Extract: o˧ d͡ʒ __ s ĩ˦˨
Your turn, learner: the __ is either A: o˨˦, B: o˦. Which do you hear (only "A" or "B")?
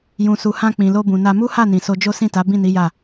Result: B